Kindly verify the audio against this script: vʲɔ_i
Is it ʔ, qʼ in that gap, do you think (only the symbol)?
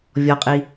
qʼ